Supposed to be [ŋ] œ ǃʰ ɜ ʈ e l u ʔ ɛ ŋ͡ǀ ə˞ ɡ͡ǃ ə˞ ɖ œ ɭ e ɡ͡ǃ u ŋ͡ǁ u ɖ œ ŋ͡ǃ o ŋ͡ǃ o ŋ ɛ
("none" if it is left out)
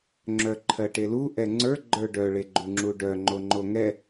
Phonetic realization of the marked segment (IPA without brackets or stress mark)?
ŋ͡ǁ